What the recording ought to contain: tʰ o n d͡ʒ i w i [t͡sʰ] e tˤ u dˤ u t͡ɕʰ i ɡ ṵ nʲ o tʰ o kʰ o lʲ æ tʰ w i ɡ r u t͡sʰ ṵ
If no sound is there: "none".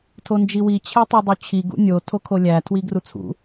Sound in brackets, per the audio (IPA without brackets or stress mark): t͡ɕʰ